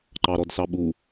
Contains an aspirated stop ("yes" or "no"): no